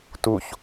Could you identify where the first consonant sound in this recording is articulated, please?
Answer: alveolar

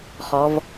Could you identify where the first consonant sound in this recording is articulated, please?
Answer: uvular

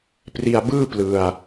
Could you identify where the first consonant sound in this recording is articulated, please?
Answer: labial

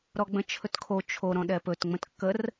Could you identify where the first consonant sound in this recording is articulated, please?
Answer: alveolar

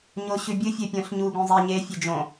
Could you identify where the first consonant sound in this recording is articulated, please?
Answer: palatal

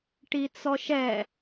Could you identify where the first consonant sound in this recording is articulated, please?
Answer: retroflex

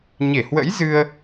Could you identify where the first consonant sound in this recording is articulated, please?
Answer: palatal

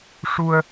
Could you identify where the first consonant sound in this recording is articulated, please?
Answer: retroflex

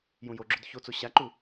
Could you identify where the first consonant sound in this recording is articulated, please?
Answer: palatal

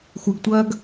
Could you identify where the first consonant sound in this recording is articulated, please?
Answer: velar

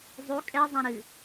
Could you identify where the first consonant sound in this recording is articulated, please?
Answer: alveolar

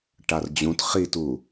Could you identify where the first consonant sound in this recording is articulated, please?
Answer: retroflex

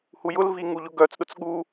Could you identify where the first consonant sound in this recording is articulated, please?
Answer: glottal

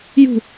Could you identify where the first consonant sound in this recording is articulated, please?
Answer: palatal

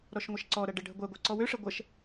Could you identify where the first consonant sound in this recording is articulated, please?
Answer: alveolar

